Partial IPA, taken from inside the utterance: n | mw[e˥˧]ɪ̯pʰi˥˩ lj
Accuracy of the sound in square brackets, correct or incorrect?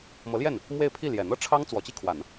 correct